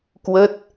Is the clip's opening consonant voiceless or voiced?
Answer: voiceless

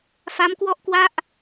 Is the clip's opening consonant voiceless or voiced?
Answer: voiceless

